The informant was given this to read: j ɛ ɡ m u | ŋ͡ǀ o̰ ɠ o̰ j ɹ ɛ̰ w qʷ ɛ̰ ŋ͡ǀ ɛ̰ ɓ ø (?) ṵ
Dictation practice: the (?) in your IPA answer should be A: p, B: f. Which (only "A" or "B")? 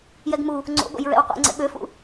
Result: B